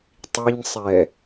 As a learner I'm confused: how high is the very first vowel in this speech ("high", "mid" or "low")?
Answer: high